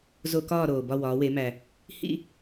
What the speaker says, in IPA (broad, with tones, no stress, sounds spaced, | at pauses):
z o˧˩˧ k ɒː˦˨ ɾ oː˩ b ɒ˦˨ w ɒː˩˧ w e˩˧ m æ˩ | h ḭ˦˨